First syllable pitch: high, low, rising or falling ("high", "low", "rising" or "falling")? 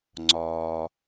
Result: low